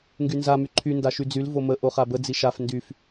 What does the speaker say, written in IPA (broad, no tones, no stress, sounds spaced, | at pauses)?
ŋ ɡ y n z a m y ǃʰ y n d a ʃ y d͡z y l v o m ə ʔ o χ a b ə d͡z i ʃ a f n d y f